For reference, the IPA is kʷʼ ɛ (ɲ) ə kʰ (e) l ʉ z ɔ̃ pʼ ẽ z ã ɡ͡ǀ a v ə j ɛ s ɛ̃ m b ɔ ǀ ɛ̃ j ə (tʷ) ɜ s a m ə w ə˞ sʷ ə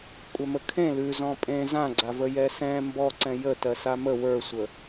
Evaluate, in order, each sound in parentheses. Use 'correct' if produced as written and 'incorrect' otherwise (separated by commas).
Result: incorrect, incorrect, incorrect